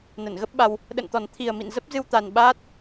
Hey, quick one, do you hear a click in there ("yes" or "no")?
no